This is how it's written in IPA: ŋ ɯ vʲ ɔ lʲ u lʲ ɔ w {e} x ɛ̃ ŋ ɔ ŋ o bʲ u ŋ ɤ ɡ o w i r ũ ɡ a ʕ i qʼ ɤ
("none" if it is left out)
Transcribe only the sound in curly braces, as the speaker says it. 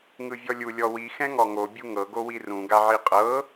i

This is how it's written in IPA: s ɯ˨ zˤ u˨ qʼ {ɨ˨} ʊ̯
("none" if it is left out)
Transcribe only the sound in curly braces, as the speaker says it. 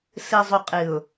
ɨ˨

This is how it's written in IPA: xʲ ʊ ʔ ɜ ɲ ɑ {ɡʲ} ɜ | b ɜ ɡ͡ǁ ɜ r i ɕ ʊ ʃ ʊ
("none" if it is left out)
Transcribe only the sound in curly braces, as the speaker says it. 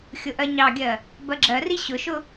ɡʲ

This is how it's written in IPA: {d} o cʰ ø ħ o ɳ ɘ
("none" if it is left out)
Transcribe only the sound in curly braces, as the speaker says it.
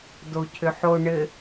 d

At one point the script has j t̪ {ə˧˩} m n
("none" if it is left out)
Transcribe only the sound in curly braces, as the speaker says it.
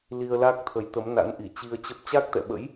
ə˨˦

